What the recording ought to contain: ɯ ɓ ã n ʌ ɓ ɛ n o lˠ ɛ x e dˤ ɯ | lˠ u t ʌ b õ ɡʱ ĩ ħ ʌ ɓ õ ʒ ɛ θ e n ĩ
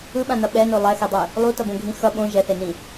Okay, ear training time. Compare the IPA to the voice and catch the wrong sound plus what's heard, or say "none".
ħ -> x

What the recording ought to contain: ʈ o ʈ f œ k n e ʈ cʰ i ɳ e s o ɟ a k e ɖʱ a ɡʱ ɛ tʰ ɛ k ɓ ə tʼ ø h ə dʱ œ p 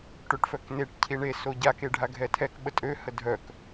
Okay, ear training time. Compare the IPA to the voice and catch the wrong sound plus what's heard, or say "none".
p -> k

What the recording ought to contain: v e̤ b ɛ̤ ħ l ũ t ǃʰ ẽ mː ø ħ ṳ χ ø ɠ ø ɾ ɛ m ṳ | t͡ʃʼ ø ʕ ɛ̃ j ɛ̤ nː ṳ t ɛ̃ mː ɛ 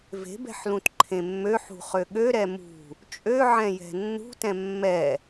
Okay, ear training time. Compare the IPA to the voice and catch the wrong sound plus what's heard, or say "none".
none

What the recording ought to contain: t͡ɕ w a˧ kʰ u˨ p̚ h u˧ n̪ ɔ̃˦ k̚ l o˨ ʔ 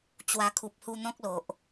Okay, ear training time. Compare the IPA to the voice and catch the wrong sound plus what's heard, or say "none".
none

